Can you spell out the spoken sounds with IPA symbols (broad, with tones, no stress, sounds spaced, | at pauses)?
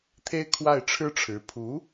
t̪ʰ e˥ ɪ̯ kʰ w a˥˩ ɪ̯ ʈ͡ʂʰ ɻ̩˥ ʈ͡ʂʰ ɻ̩˧˥ pʰ u˧˥